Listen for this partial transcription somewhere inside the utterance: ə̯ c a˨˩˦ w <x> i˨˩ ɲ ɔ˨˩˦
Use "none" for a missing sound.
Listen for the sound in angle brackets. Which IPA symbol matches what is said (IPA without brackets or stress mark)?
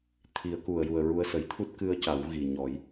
ɣ